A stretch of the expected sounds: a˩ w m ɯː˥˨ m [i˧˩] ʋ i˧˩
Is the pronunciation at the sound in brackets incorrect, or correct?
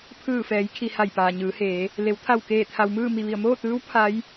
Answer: correct